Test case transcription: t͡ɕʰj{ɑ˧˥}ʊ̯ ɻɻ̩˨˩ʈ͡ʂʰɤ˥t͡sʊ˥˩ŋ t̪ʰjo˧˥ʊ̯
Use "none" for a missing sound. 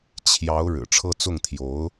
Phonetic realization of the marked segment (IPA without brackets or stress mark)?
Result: ɑ˧˥